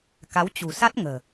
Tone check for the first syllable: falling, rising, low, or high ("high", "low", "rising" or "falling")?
rising